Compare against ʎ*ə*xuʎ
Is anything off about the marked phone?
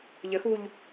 no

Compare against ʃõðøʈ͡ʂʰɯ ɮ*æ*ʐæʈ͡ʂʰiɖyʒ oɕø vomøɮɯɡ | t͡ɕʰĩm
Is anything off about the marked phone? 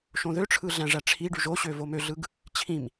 yes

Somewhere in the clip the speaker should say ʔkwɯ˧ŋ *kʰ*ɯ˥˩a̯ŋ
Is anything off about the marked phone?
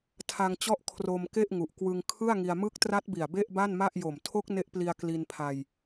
no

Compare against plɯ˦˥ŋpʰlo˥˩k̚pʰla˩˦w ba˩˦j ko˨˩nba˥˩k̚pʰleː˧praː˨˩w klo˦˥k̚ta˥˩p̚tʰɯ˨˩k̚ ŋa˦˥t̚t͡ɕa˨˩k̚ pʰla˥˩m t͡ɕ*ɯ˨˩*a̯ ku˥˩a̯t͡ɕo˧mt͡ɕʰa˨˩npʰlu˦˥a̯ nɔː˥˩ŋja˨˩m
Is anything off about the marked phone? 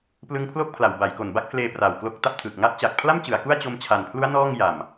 yes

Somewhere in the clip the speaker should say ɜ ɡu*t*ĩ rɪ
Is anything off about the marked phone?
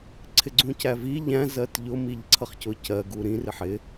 yes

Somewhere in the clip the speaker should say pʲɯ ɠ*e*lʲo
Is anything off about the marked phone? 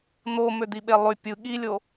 yes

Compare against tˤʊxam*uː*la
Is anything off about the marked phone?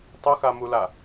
yes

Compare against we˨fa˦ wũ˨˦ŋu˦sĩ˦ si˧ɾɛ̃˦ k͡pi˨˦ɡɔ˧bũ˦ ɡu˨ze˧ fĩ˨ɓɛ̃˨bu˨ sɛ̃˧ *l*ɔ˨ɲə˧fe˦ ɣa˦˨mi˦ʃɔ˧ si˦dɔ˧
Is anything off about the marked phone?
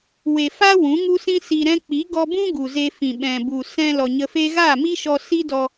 no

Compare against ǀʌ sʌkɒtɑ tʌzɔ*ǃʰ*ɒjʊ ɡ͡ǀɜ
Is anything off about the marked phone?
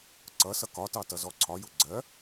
yes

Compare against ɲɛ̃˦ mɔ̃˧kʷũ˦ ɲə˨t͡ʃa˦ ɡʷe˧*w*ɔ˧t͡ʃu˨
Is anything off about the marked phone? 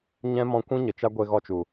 yes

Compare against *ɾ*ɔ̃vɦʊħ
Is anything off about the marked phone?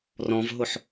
yes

